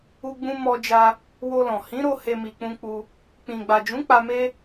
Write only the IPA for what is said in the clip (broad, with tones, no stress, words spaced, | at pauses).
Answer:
u˦ɡ͡bũ˦ mɔ˧d͡ʒa˧ | wo˧lɔ̃˨ hĩ˨˦ɾo˧ he˦mi˧k͡pũ˦ k͡pu˧ | k͡pĩ˨ ɡ͡ba˨d͡ʒũ˨˦ k͡pa˧me˦